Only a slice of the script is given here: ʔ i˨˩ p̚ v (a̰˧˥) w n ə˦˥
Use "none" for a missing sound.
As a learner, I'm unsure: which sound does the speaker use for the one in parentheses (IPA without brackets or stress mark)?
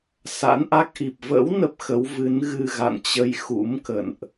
ə̰˧˥